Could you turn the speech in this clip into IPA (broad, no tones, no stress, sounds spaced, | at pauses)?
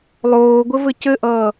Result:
lˠ oː ɡʷ ɘ v ɘ c ɘ ʔ ʌː